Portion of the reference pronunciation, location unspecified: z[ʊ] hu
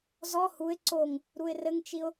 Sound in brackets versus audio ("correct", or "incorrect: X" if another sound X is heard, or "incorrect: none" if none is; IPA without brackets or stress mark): incorrect: ɔ